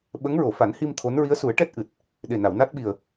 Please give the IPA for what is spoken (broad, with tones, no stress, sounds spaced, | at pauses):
ɓ ə˧˥ ŋ ɹ o˨˩˨ f a˨˩˦ n h i˧ m t̪ʰ o˧˥ n ɹ i˧˥ ə̯ s u˨˩˦ ə̯ ʈ ɛ˦˥ t̚ ʔ ɨ˨˩ t̚ | ɗ e˨˩ n a˨˩˨ w n a˦˥ t̚ ɓ i˨˩ ə̯